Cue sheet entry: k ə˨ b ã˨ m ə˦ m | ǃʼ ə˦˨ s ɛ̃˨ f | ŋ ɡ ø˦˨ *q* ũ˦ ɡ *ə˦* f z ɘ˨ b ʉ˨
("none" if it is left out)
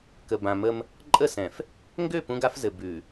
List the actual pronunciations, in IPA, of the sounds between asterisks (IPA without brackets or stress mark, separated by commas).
p, a˦